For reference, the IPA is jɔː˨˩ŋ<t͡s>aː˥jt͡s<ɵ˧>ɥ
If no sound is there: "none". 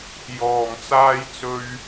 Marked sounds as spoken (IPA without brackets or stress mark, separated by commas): t͡s, ɵ˧